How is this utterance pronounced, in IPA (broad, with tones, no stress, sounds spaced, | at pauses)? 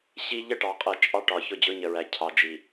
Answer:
ɕ i˦ ʎ ə˦ ʈ ɑ˨ qʼ ɜ˨ t͡ʃʼ ɑ˦ ʈ ɒ˨ ç ʊ˦˨ d͡ʑ ʊ˦ ɲ ə˨ ɹ æ˨ cʰ ɑ˨ d͡ʒ i˨